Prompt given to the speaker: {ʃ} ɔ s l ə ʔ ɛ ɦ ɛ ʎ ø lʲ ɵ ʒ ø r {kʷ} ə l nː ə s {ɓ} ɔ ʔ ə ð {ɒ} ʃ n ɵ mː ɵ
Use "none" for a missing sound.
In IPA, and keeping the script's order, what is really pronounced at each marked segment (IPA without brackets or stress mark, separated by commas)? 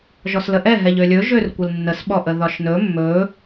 ʒ, kʷ, ɓ, ɒ